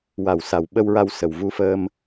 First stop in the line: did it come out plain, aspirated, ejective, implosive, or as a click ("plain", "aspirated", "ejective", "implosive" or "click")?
implosive